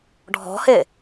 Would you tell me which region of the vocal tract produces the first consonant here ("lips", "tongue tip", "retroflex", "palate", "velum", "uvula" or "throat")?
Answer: retroflex